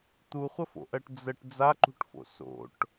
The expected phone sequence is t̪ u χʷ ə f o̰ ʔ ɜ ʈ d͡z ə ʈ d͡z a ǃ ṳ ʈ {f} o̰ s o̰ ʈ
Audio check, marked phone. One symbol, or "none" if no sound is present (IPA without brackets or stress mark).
f